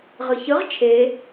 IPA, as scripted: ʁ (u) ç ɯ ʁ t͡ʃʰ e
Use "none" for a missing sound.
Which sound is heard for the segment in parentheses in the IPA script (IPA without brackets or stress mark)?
ɯ